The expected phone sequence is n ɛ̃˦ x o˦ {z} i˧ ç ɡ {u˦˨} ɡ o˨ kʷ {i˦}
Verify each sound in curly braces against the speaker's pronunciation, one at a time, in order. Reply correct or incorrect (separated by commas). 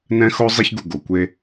incorrect, incorrect, incorrect